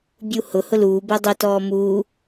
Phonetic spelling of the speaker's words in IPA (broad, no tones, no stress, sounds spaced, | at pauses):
bʲ u h ʊ h ʊ l uː b ɛ dˤ ʊ t ɔː m uː